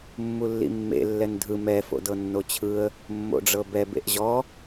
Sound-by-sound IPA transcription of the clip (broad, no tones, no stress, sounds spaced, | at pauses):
mː u lː ḭ mː ḛ lː ɛ n dʱ ɯ m ɛ f o̰ d ɤ nː o t͡ɕʰ ɯ ə̯ | mː o̰ ɖ͡ʐ ɤ b ɛ b ḛ ʔ ʑ ɔ